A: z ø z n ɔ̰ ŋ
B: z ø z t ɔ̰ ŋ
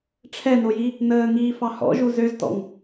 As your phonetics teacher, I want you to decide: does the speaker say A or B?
B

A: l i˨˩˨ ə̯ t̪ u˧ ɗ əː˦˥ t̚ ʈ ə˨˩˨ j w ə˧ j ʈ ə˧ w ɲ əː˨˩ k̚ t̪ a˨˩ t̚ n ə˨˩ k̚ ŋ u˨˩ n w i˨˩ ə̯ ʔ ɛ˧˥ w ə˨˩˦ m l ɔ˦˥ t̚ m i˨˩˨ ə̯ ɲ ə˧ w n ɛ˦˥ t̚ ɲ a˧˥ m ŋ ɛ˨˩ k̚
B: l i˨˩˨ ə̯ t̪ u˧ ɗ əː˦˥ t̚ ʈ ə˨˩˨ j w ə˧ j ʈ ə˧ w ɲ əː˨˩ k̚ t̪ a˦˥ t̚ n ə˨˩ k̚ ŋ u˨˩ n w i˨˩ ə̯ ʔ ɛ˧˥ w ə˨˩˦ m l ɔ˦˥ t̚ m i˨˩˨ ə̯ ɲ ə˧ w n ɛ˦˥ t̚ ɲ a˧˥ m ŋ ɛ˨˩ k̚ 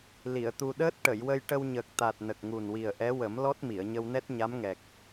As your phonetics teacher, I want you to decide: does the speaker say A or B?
A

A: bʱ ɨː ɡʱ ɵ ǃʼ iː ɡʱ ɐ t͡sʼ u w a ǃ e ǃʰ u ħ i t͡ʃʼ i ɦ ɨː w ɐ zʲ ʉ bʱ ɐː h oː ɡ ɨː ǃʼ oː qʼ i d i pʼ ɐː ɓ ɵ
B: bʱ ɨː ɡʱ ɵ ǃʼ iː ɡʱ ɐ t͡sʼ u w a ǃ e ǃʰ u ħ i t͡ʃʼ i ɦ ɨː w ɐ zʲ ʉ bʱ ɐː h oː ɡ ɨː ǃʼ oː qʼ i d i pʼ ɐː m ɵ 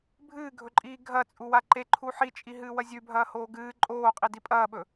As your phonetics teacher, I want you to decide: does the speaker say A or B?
A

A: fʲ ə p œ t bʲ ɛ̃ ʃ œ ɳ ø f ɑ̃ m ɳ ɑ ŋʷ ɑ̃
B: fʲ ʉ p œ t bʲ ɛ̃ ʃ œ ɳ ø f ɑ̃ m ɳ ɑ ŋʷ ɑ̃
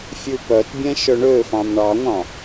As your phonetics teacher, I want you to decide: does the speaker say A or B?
B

